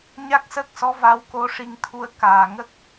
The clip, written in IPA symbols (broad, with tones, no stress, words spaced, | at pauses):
ɲa˦˥k̚səː˦˥k̚sɔ˧˥va˧˥w ko˧ʂi˧ŋt̪ʰu˧ə̯ kaː˨˩ ŋə˦˥k̚